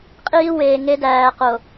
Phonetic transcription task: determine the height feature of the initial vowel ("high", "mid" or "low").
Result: high